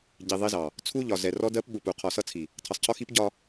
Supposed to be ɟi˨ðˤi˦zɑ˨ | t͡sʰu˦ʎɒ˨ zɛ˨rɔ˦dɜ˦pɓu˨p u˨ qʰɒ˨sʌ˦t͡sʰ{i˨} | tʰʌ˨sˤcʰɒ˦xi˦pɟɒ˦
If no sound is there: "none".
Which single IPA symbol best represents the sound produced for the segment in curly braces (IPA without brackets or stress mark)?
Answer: i˨